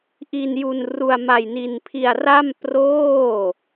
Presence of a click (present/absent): absent